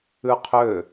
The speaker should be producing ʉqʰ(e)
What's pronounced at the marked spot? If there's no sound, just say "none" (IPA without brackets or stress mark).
ø